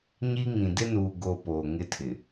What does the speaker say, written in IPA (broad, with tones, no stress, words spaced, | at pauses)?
ɲi˦ŋĩ˨ dɪ˦nuː˨ ɡo˦ poː˨ŋɪ˦tʰɪ˨